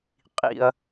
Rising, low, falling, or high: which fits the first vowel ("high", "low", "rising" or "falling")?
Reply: low